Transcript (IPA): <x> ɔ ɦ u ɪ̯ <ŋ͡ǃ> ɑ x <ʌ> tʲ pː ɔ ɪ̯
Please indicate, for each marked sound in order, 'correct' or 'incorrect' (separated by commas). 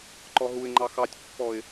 incorrect, correct, incorrect